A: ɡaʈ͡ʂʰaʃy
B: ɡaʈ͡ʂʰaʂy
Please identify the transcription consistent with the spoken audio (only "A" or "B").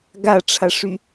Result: B